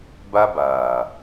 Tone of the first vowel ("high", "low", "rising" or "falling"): high